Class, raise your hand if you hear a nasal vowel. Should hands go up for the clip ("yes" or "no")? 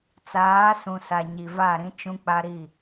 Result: yes